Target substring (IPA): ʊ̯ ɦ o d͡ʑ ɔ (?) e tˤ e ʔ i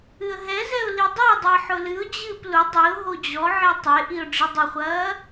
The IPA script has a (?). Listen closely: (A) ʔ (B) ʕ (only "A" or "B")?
B